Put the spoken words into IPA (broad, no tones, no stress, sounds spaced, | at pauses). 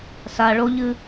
s a ɭ o ʎ ɨ